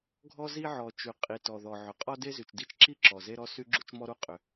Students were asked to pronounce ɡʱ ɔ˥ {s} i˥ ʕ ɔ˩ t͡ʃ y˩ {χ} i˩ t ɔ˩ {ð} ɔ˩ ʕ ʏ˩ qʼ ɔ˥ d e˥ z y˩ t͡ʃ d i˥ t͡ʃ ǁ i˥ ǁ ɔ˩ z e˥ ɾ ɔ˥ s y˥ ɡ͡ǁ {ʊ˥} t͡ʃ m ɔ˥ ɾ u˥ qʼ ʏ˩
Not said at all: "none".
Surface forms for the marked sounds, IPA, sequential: z, qʼ, ð, u˥

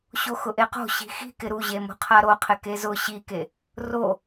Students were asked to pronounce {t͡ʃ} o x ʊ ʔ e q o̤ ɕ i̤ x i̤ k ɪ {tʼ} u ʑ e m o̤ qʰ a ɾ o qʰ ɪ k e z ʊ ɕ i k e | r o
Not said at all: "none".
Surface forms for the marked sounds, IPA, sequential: ɕ, ɾ

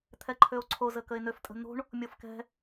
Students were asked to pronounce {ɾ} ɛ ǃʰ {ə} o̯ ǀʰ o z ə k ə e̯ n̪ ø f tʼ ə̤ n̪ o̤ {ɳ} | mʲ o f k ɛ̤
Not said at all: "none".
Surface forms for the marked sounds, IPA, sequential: t̪ʰ, ø, ɳ

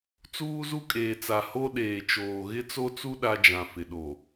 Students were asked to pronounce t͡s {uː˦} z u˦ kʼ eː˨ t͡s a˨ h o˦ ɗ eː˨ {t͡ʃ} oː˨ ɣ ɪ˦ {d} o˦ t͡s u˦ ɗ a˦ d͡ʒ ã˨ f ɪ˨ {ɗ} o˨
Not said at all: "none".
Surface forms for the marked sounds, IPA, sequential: uː˦, t͡ʃ, t͡s, ɗ

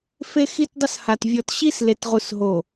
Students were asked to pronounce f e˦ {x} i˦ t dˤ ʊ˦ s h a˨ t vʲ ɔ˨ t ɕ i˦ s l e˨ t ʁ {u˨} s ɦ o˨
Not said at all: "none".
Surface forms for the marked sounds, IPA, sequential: x, u˨

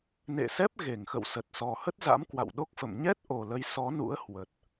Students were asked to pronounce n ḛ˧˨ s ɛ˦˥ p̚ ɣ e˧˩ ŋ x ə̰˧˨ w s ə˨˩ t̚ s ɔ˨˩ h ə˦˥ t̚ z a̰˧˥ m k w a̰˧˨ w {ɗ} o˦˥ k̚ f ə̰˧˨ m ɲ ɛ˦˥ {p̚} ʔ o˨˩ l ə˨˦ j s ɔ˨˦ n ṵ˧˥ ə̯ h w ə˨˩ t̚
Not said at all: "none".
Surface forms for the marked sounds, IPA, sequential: ɗ, t̚

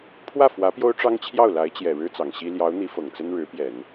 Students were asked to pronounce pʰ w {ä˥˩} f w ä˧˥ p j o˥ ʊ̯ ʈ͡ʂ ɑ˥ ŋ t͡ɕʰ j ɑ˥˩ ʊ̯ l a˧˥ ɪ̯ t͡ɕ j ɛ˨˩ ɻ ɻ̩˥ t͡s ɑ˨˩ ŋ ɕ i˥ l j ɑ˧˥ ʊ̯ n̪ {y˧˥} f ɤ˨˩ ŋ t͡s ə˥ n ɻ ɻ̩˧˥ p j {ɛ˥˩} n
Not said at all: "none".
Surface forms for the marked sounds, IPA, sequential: ä˥˩, i˧˥, ɛ˨˩˦

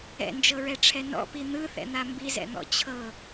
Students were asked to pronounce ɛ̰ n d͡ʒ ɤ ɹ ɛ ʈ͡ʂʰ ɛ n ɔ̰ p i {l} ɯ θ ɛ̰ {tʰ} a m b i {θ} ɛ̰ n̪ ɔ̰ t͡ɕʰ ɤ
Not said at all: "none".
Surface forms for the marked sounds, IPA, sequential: n̪, n̪, z

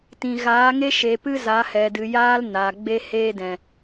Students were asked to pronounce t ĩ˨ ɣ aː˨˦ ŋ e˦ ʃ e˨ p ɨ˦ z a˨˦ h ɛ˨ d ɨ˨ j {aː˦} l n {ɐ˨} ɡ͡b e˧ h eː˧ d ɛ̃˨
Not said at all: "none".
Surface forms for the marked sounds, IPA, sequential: aː˦, a˨

